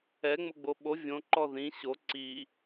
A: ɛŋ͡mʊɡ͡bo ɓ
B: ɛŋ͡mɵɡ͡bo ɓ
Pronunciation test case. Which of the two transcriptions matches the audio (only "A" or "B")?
A